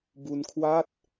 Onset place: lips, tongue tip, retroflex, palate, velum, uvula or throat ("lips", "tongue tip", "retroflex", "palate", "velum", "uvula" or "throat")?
lips